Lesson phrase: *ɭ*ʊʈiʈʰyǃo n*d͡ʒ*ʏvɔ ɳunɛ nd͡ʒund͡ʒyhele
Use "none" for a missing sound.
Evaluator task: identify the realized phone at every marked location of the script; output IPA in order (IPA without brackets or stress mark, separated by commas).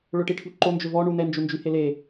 ɭ, d͡ʒ